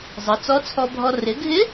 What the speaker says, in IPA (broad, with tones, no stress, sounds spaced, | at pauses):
zˤ ʌ˩˧ t͡s ɔ˧˥ t͡sʰ ɔ˧ bʱ ɔ˧ r ɪ˩˧ ɡʱ ɪ˧˥